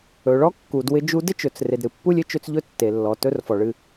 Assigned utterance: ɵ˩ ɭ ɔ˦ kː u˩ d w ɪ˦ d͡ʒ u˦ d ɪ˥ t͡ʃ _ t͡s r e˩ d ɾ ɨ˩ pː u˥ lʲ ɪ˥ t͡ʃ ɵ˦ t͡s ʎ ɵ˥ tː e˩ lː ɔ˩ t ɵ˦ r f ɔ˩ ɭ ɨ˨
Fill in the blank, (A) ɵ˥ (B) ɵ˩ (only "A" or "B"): B